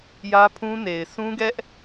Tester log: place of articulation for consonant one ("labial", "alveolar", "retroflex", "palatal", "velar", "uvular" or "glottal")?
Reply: palatal